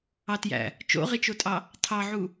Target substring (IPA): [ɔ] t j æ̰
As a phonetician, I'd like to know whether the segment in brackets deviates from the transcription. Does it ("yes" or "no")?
yes